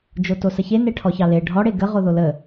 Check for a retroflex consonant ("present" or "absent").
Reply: present